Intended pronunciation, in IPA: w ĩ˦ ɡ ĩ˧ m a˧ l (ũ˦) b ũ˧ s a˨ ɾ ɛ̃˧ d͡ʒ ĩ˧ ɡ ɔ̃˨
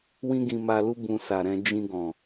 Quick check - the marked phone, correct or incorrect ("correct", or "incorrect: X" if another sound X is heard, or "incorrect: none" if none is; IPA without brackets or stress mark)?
incorrect: u˦